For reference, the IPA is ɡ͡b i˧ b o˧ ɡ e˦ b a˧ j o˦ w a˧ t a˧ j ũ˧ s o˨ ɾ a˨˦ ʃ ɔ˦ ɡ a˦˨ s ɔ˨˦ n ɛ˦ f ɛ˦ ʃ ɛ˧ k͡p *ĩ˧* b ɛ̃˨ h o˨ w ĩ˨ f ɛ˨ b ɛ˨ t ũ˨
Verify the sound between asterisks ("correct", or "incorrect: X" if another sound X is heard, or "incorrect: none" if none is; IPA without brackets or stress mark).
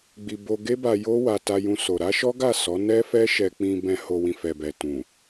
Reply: correct